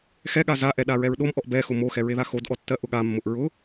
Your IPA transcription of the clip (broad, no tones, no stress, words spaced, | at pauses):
xɛɠa zaʔɛ ɗaɹɛɹɗomʔɔʔ bɛxʊ moxɛ ɹeðaxodʔɔ tːɜʔʊɠamːʊʔ ɹʊ